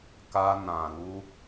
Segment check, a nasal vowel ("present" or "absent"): present